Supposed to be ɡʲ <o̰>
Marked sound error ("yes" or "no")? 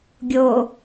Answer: yes